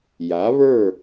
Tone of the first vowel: rising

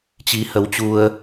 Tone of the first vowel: rising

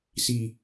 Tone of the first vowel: low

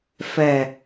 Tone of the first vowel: low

